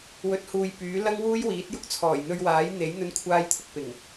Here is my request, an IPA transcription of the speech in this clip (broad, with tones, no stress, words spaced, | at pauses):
wɵ˨˥t̚huː˨j pyː˨˥ lɐ˥ŋwuː˥jwiː˨˥t̚jʊ˥k̚ t͡sʰɔː˨˩jn̪ɵ˧ɥwaː˨˥j n̪e˨˥j n̪ɵ˧nkʷʰaː˧jt̪ʰʊ˧k̚ pɪ˨˩ŋ